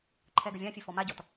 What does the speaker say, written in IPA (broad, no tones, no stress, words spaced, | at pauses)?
ǃʰɛɡəvʲãfʲʉ fɔmaɟɔt